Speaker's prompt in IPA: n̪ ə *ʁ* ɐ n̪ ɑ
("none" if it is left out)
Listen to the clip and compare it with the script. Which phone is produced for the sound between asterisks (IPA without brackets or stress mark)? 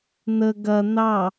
ɡ